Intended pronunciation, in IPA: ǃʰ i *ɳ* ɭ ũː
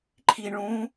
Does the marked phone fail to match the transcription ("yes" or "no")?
no